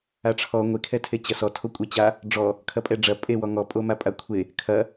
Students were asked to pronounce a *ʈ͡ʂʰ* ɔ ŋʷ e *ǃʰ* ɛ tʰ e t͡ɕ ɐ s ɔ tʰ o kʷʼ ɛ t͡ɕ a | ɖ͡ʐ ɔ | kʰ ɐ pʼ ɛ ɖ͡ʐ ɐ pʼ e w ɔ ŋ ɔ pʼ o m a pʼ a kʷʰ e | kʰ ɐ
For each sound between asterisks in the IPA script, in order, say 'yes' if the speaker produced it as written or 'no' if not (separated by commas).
yes, no